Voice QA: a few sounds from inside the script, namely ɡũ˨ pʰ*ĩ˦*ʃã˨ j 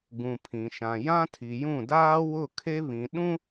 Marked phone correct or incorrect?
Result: incorrect